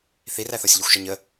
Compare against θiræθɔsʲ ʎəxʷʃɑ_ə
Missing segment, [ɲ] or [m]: ɲ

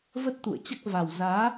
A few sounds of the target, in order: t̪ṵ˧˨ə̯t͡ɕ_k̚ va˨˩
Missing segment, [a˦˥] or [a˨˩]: a˦˥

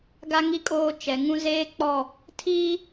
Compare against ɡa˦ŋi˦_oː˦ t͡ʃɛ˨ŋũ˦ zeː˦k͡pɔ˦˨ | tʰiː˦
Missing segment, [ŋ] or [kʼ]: kʼ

